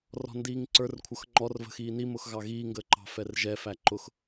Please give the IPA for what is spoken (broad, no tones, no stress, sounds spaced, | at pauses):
r ɔ̤ n d iː ŋ ǀ ə˞ r kʷʰ ʌ x ŋ͡ǃ ɔ r v ə̤ x iː n i m ʊ x ɣ ɑ ɣ iː ŋ ɡ əː ǃ ɑ̤ f ɛ r ʒ ɛ f æ ǃ ʊ x